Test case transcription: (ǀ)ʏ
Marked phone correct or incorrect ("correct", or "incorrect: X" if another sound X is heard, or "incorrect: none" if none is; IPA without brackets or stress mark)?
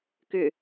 incorrect: k